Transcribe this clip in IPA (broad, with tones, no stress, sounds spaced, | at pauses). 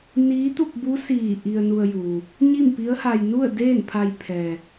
n iː˧˥ t̪ u˥˨ p̚ b u˧˥ s iː˧˩ ʔ i˧ ə̯ n u˧ ə̯ j uː˩ | ɲ i˥˨ m p i˧˥ ə̯ h a˧ j n u˥˨ ə̯ d eː˥˨ n pʰ a˧ j pʰ ɛː˩